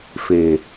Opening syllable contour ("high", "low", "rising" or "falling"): low